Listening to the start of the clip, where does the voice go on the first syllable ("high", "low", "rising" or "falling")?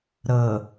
low